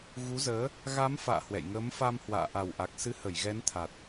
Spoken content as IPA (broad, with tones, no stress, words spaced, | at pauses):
ɣu˨˦zəː˨˦ | ɣa˨˦m fa̰ː˧˨ hwɛ̰˧˨jŋəː˨˦mfa˧m hwa̰ː˧˨ʔa˨˩wʔa˨˩k̚sɨ˨˦ hə˧˩jɣɛ˨˦nt̪ʰa˨˩t̚